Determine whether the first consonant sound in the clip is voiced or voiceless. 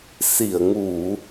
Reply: voiceless